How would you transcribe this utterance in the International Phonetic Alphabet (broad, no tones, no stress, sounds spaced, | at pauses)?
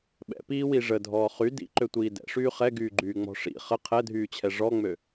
ɓ ɛ̰ p iː w i ʐ ə dʱ ɔː χ y d ḭ ǃ ø tʷ iː d ɛ̰ ʂ yː χ ɛ ɡ yː ɡ͡ǃ yː ŋ͡m ɔ̤ ʂ ḭ χ ə qʰ ɛ dʱ yː t͡ɕʰ ɛ ʐ ɔ ŋ͡m ø